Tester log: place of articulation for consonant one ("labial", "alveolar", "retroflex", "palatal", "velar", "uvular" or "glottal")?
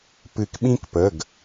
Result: labial